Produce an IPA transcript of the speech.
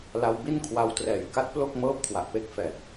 la˧wbi˥˩nkʰwa˧wtrɛː˨˩j ka˦˥t̚plo˥˩k̚mɤː˦˥p̚ kʰwa˨˩ʔpe˦˥k̚ fɛː˨˩p̚

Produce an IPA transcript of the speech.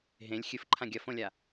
ɦẽlʲ xʲɨfǃʰã ɡʲɐfõlʲa

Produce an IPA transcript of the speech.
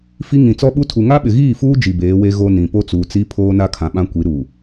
fi˦ ŋĩ˨ t͡sɔ˦ɓu˦tʰu˨ ŋa˦ɓɪ˨ɣiː˦˨fuː˦ d͡ʒi˨beː˨˦we˦ ɣo˦nĩ˨ po˦t͡suː˨t͡si˦ pʰoː˦na˦kʰã˨ɓã˦ kʷi˨˦ɾu˨

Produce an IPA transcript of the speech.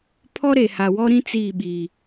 pʰɔ˦ɾe˨ha˨ wɔ˦ɾĩ˦ t͡siː˦˨ɓiː˨

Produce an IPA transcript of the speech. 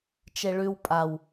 t͡ʃeɭʉw pʼaw

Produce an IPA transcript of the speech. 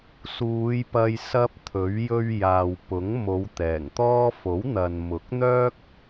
suː˨˧jpɐ˧j sɐ˥p̚t̪ʰɵ˨˥ɥ jɵ˧ɥ jaː˨wpʊ˨˥ŋ mo˨˧wt̪ɛː˨˩ŋt̪ɔː˥ fo˨˥wn̪ɐ˨n mʊ˨˥k̚n̪œː˥k̚

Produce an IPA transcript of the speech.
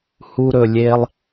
hu˧ɾɵ˨lʲe˧lˠ

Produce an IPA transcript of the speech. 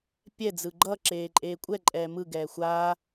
pʲɛ d͡zɯɡ͡ǃʌǁeːǃʼeː kʷʼɛ ǃʼɛːmɯ ɡɛːxʷaː

